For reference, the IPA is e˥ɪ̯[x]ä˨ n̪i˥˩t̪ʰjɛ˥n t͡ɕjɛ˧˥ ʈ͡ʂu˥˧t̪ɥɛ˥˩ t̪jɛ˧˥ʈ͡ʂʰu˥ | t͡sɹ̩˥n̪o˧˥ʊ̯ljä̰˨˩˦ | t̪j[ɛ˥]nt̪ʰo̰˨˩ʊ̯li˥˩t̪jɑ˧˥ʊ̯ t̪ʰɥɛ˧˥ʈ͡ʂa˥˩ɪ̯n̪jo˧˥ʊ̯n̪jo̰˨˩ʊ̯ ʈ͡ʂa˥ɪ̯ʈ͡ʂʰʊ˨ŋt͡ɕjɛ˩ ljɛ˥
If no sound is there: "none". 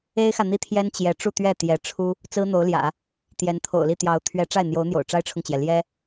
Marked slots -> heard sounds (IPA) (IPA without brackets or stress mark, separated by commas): x, ɛ˧˥